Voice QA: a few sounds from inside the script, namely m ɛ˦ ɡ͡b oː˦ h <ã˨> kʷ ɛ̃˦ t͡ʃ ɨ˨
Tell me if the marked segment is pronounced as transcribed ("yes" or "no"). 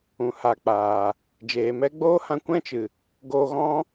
no